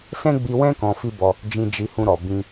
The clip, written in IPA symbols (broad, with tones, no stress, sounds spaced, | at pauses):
s ɛ̃˦ ɡ͡b i˧ w ɛ̃˦ k ɔ̃˧ f i˦ b ɔ˧ | d͡ʒ ĩ˧ d͡ʒ i˧ h ũ˧ ɾ ɔ˨ b ĩ˧